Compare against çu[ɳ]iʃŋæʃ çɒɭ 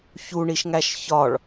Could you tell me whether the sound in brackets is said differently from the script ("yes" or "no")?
no